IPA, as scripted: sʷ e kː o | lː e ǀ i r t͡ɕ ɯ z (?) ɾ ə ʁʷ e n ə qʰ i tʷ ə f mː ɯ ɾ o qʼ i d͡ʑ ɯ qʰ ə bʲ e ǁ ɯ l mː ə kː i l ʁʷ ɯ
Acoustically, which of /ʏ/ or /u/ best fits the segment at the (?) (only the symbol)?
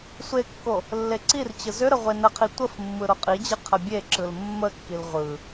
ʏ